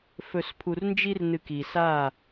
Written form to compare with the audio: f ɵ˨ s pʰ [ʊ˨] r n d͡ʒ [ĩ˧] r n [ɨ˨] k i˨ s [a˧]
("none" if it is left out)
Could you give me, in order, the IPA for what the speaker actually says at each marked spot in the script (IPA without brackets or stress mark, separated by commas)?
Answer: u˨, i˧, ɨ˨, a˦˨